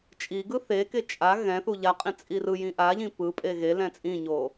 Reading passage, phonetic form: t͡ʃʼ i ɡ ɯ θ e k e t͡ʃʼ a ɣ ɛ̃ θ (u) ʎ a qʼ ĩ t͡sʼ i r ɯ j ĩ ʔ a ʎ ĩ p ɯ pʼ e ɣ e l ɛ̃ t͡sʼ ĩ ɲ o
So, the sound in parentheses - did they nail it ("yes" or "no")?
yes